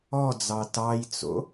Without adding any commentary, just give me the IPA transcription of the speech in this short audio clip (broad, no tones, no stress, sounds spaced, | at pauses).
ɔ d͡z ɑ t ɑ j t͡s o̰